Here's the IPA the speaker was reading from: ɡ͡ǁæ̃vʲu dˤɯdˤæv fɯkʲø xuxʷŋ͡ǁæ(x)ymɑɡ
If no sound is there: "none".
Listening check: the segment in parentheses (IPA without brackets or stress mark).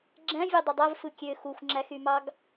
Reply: x